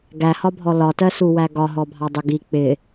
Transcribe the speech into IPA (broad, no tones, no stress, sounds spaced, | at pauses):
ɡ æ h ɒ bʱ ɔ l ɒ t ɜ s u w æ ɡ ɒ ɦ ɔ bʱ ɑ dˤ ʊ ɡ i k͡p ɪ